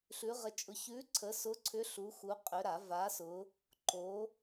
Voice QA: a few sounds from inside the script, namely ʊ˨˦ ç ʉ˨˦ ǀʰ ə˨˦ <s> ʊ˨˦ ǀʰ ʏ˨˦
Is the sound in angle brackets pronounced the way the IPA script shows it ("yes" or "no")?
yes